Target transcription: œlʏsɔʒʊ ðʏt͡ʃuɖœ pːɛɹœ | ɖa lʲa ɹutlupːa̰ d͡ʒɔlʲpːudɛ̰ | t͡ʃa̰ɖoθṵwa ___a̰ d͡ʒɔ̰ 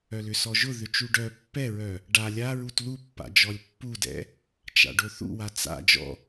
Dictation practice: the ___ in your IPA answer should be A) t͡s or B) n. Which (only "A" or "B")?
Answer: A